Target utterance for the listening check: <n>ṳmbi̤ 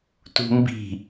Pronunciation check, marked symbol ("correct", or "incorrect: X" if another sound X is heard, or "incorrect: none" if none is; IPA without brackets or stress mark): incorrect: t